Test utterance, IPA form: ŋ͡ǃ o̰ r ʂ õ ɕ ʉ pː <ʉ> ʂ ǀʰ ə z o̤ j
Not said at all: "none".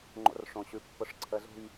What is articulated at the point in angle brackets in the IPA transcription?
ʊ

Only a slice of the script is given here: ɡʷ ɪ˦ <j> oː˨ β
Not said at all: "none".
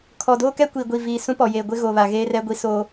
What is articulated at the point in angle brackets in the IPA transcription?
ɣ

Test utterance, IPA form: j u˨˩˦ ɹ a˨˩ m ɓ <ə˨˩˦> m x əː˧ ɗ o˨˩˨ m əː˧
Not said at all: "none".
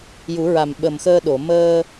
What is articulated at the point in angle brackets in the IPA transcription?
ə˨˩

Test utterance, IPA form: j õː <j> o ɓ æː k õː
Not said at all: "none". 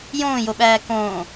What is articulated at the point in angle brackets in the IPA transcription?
j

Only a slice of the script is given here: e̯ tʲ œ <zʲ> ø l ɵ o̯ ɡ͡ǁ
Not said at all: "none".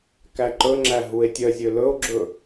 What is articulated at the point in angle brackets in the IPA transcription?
zʲ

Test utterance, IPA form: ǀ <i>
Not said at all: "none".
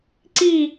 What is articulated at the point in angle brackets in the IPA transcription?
i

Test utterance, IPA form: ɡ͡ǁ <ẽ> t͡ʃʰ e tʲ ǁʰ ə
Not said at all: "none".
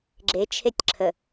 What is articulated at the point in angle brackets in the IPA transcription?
e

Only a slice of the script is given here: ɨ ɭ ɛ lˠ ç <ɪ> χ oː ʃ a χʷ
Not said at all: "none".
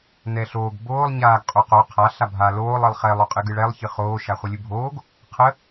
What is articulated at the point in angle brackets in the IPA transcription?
ɨ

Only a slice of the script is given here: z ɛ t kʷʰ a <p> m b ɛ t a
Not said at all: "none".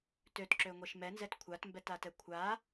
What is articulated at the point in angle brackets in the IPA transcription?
t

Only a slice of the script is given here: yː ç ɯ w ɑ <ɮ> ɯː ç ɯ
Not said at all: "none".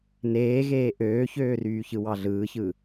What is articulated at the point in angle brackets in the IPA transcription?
ɮ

